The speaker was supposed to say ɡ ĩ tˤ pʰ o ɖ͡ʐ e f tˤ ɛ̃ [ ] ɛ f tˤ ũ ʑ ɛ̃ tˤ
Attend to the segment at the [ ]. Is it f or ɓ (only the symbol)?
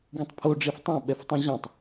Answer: ɓ